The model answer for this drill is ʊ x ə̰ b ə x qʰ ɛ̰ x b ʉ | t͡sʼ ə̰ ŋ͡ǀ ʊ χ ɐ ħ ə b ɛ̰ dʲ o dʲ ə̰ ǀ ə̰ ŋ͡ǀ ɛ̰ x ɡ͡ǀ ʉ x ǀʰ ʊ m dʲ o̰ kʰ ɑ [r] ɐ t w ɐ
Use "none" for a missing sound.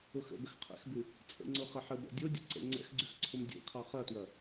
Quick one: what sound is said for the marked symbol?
χ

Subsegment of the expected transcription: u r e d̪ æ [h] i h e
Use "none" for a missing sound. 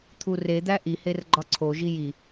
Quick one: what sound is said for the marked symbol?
ʔ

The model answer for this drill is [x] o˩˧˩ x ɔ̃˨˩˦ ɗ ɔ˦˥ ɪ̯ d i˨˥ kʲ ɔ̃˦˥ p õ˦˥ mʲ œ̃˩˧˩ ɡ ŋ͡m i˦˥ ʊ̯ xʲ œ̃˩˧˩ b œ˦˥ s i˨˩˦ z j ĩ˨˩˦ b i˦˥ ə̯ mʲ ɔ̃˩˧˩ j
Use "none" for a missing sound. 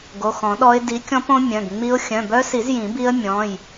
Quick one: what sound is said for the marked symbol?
ɡ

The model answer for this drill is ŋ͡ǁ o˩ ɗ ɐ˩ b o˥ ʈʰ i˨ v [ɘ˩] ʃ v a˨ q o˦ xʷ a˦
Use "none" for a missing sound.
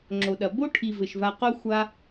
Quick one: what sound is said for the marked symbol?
ɘ˩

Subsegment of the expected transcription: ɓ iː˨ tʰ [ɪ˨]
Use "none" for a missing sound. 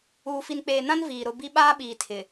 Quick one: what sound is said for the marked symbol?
ɪ˨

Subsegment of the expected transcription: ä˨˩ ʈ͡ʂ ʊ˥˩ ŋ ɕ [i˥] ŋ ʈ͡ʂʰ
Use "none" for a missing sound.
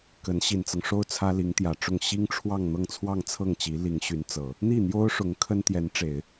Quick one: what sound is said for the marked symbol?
i˥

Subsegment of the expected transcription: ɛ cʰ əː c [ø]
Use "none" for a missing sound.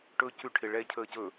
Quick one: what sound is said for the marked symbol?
ɵ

